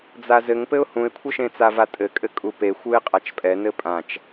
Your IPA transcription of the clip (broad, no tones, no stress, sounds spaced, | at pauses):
d͡z a z ɘ ŋ p ɘ ʊ̯ h ũ ɪ̯ kʷʰ ɘ ʃ ẽ t͡s a v a tʼ ɘ kʼ ɘ kʼ u p e xʷ ɯ ɪ̯ qʼ a t͡ʃ pʼ ɛ n ɘ pʼ ã t͡ʃ